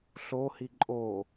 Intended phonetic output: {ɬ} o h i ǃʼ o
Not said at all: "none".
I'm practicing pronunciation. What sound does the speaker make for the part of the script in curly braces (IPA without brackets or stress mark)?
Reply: ɬ